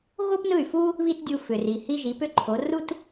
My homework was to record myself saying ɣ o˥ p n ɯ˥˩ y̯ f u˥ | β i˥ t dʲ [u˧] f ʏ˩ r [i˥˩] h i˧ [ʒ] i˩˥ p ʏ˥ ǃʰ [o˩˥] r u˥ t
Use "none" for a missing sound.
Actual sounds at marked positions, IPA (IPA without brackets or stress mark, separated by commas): u˧, i˩, ʒ, o˩˥